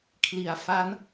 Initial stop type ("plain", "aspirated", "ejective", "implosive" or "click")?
aspirated